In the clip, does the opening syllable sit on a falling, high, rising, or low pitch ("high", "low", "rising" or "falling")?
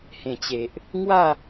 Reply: low